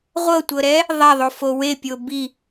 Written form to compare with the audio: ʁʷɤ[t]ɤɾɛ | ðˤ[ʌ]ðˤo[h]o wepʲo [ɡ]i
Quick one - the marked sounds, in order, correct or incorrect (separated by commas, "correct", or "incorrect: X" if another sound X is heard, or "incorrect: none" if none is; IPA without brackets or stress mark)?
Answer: incorrect: tʷ, incorrect: a, incorrect: f, incorrect: b